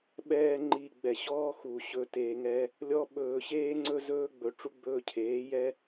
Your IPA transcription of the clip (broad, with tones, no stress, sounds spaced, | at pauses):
ɓ ɛː˧ ŋ͡ǃ iː˨ ɡ͡b ɛ˨ ɕ ɔː˦ x u˨ ɕ ɵ˧ t e˧ ŋ ɛ˦ | lʲ ɔ˧ ɓ ɵː˨ ɕ eː˦ ŋ͡ǀ ɵ˦ z ɵː˦ ɡ͡b ɵ˧ ʈ͡ʂ u˦ ɡ͡b ɵː˧ cʰ eː˨˦ j ɛ˦